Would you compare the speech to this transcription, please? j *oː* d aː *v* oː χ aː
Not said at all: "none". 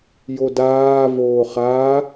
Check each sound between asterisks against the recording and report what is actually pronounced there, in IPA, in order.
o, v

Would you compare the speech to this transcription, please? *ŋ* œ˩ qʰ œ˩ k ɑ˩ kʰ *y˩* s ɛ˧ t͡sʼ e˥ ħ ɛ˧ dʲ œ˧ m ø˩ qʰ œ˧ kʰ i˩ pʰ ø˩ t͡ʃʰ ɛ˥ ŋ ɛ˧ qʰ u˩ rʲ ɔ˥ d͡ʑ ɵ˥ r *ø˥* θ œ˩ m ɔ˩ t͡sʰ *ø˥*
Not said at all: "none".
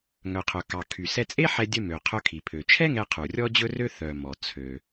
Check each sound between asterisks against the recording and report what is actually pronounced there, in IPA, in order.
ŋ, y˩, ø˥, ø˩

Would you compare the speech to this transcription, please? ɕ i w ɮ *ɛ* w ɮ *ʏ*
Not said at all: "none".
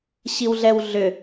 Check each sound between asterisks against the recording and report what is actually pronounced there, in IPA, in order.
ɛ, ʏ

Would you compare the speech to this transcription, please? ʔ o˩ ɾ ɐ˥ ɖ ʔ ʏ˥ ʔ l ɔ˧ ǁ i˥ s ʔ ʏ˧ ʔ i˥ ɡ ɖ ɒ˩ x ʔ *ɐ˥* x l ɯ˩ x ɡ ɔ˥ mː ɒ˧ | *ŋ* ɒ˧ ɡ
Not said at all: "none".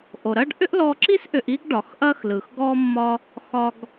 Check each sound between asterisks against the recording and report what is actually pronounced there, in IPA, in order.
ɐ˥, x

